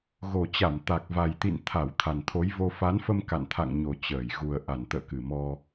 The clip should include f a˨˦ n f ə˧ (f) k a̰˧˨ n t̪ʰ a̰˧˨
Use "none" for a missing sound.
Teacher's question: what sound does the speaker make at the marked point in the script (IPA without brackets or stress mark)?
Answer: m